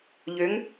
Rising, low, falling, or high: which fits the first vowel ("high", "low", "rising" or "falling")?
rising